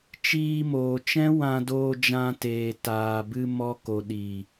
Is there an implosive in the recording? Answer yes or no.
yes